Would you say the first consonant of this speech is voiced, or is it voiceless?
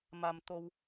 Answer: voiced